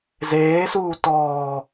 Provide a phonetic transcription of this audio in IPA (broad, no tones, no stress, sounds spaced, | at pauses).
z eː s uː t ɔː